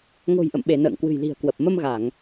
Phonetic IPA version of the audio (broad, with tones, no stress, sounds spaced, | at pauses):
ŋ o̤˨˩ j ʔ ə̰˧˨ m ɓ e˧˩ n ə̰ː˧˨ ŋ k w ɨ̤˨˩ j l i̤˨˩ ə̯ k w ə˨˩ p̚ m ə˧ m ɣ a˧˩˨ ŋ